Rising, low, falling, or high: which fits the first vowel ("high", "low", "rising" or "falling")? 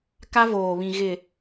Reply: high